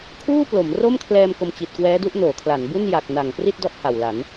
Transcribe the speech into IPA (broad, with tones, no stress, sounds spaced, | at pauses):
kʰ uː˥˩ p l o˩˦ m r o˥˩ m kʰ l ɛː˧ m k o˧ m t͡ɕ i˨˩ t̚ k w ɛː˦˥ d u˥˩ ʔ n oː˩˦ kʰ l a˩˦ n b u˥˩ n j a˨˩ k̚ n a˨˩ ŋ p r i˥˩ t̚ d ɔ˦˥ ʔ h a˨˩ w l a˩˦ n